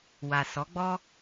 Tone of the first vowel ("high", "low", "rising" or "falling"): low